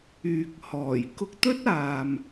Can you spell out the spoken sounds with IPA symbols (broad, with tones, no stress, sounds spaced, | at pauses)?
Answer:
yː˨ k̚ h ɔː˨˩ j k ʊ˧ k̚ t̪ ɵ˥ t̚ aː˨ m